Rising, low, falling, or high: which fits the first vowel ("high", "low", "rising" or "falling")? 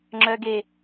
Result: low